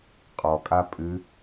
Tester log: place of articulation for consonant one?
uvular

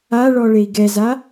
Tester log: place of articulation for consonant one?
retroflex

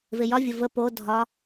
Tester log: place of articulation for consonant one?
labial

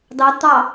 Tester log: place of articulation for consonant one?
alveolar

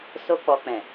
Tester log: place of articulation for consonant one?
alveolar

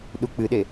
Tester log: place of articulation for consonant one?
alveolar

